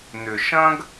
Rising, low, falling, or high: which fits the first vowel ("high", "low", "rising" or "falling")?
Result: low